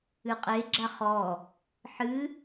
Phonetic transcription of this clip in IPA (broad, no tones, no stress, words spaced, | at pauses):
ɨqʼe ɡ͡ǁaχɔ | ħɨ